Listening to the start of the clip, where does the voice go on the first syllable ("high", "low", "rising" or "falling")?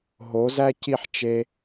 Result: rising